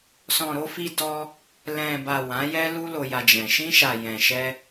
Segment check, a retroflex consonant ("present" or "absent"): absent